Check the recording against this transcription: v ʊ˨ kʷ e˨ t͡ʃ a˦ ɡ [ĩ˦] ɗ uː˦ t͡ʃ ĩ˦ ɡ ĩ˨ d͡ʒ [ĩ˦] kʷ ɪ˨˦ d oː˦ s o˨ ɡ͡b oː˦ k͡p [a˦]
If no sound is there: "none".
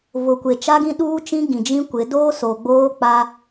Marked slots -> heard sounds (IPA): ĩ˦, ĩ˦, a˦

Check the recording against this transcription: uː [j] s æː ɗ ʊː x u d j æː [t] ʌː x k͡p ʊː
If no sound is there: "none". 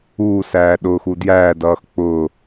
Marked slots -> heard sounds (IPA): none, d

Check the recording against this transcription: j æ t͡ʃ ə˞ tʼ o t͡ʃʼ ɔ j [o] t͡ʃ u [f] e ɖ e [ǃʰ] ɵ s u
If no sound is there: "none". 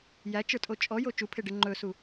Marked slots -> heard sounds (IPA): o, pʰ, ŋ͡ǃ

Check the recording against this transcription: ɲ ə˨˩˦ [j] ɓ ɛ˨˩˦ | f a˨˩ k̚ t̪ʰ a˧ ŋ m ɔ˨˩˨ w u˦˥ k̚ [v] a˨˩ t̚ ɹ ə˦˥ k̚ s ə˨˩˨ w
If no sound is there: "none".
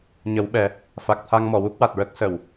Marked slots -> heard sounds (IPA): w, w

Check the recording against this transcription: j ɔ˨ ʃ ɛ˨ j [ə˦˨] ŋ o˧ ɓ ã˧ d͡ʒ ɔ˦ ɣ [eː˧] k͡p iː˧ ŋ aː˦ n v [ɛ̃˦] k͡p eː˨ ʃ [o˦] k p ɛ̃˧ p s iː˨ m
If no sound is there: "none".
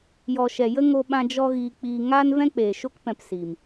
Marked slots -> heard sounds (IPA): ə˦, iː˧, ɛ̃˦, o˦

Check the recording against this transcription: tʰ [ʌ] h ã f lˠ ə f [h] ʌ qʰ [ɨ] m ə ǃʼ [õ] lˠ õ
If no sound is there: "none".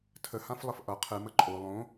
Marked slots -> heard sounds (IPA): ə, ʔ, ɨ, o

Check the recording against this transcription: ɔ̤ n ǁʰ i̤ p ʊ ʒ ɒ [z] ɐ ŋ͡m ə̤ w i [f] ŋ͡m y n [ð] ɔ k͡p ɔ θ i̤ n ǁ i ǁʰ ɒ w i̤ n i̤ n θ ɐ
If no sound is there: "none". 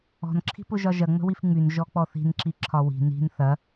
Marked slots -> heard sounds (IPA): ʒ, f, ʒ

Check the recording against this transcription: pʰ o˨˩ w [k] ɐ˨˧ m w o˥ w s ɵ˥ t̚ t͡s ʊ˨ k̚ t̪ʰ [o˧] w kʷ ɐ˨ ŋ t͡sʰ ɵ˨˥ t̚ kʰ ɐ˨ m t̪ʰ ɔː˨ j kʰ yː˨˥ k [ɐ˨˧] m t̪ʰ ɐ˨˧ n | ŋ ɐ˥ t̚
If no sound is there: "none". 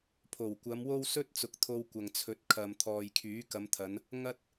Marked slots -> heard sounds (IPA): kʷ, o˧, ɐ˨˧

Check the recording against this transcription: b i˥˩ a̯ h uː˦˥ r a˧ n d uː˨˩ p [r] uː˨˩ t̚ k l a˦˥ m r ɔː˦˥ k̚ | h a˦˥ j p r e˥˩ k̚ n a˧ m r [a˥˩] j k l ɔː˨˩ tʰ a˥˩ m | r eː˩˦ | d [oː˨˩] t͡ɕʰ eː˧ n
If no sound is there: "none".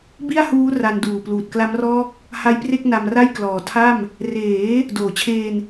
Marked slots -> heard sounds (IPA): l, a˥˩, oː˨˩

